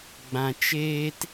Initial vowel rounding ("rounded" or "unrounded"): unrounded